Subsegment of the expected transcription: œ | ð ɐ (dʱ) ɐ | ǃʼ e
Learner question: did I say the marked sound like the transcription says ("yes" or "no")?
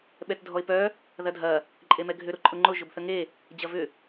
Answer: yes